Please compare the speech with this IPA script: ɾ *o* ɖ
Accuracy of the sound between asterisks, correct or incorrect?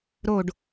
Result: correct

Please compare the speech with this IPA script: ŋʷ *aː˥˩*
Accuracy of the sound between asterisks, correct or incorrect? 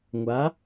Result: incorrect: aː˨˦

